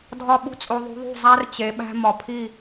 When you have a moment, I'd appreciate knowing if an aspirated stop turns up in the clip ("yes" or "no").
yes